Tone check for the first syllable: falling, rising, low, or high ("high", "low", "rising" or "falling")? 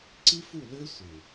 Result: high